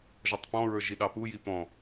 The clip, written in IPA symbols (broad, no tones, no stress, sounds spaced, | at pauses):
ʒ ɔ tˤ p ɔ̃ ɹ ə˞ ʒ i ɗ ɑ p u j i p ɔ̃